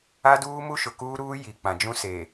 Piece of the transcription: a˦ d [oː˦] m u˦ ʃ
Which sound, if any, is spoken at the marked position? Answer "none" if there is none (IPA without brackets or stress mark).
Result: uː˦